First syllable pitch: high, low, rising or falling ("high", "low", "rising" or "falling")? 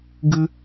high